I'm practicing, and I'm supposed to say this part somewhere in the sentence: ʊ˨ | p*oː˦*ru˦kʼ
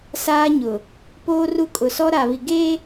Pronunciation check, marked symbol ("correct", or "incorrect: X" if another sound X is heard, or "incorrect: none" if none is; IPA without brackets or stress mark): correct